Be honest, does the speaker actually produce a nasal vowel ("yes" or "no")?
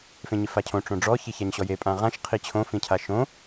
yes